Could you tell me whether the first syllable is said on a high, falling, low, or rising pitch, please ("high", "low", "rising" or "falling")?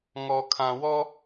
low